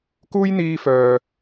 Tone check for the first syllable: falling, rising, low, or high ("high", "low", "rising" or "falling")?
high